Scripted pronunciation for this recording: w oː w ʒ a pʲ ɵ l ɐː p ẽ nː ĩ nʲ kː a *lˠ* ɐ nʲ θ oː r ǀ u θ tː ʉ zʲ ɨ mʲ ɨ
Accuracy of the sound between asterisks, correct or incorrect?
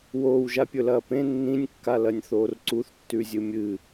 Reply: incorrect